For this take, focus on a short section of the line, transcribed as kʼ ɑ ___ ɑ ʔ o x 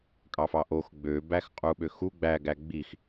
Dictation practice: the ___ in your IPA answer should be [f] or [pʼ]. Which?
f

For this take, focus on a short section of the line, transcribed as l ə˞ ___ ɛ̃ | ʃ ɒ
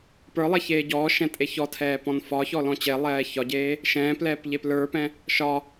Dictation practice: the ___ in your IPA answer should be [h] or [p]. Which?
p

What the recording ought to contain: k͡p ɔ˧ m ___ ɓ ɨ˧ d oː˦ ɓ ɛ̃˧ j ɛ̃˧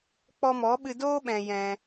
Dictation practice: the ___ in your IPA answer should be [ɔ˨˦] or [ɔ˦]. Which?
ɔ˨˦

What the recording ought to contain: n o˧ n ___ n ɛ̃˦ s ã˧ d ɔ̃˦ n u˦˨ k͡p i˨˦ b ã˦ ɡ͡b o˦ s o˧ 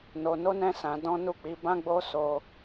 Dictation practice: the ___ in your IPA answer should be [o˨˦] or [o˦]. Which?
o˦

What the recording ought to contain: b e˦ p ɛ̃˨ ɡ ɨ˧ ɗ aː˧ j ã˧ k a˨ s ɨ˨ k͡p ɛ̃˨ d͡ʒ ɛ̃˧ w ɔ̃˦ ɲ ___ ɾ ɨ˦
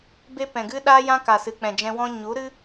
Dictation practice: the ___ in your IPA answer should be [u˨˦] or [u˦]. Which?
u˨˦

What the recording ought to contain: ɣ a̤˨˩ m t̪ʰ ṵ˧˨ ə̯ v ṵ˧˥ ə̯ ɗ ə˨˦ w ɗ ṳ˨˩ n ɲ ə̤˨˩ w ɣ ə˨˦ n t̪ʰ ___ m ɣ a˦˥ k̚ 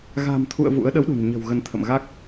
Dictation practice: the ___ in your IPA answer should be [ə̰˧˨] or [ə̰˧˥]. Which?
ə̰˧˨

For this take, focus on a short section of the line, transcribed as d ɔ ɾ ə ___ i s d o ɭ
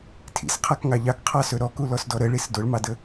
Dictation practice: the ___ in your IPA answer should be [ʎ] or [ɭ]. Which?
ɭ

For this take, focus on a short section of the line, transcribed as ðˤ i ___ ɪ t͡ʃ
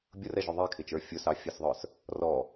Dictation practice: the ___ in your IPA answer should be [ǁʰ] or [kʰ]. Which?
kʰ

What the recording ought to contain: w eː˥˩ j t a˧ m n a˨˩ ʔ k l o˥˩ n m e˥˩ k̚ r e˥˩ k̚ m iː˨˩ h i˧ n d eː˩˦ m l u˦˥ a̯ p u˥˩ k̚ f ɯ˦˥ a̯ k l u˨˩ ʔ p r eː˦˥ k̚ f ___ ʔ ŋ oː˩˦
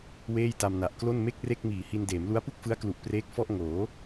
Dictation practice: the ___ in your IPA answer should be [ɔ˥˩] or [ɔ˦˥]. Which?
ɔ˥˩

